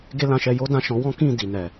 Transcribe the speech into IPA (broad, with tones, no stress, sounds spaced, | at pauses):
ɡ e˦ l ã˧ ʃ ɛ˧ j o˦ d ã˦˨ ʃ ɔ̃˨˦ w ɔ̃˦ k ĩ˦˨ d i˨ n ɛ˨